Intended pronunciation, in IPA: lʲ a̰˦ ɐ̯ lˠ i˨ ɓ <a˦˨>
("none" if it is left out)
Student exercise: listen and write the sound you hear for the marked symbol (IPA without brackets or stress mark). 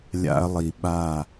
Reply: a˦˨